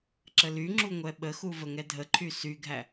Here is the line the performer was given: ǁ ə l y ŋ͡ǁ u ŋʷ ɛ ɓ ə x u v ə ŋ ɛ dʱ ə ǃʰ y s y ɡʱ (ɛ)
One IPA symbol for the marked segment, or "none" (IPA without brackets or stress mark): æ